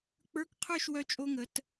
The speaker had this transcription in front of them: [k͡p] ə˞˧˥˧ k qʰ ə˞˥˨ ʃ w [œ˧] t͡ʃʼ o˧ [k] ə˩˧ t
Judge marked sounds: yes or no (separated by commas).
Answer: yes, yes, no